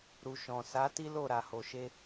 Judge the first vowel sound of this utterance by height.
high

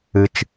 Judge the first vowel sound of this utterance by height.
high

